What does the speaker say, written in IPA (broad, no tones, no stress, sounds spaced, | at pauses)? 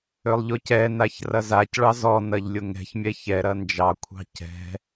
ʏ lˠ ʎ ʊ c ɛ n a ç r ɐ z a c ɭ ɑ z ɔ n ɐ ʎ lʲ ʊ ŋ ɛ̤ ç mʲ ɛ ç ɛ ɾ ɐ n d͡ʒ ɑ kʷʰ ɑ̤ c ɛ̤